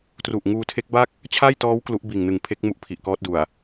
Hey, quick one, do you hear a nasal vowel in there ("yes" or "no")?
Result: no